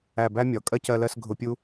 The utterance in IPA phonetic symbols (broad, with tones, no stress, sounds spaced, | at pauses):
æ˧˩ b æ˥ mʲ ɒ˩˧ kʼ ɜ˥ c ɜ˧ l ɜ˥˧ s ɡʱ ʊ˧ pʲ u˥